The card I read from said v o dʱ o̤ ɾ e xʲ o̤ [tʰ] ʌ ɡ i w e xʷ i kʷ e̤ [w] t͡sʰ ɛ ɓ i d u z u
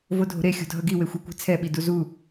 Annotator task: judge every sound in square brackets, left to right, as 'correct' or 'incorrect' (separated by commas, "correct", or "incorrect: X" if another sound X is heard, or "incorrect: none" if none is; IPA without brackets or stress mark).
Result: incorrect: dʱ, incorrect: none